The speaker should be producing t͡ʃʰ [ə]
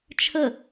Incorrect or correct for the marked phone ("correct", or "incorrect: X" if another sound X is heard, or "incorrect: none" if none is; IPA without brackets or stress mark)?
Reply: correct